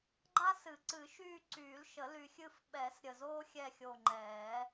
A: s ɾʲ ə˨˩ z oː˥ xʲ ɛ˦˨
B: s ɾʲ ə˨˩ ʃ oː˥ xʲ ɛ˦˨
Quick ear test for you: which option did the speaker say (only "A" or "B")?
A